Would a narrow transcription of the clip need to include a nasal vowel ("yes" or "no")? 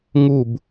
no